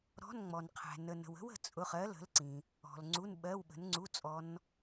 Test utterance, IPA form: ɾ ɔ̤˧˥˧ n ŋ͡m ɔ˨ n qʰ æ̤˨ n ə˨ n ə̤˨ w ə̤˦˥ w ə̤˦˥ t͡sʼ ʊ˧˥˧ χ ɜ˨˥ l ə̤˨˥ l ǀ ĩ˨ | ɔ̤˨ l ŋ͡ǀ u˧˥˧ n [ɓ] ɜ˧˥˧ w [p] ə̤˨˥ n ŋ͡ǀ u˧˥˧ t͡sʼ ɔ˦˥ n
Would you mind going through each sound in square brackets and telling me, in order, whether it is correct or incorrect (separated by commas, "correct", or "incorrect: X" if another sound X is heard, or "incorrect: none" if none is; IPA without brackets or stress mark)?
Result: correct, incorrect: ɓ